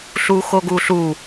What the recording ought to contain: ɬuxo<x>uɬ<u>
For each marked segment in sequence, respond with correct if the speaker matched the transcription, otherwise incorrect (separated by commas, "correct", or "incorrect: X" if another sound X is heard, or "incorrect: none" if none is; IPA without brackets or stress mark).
incorrect: ɡ, correct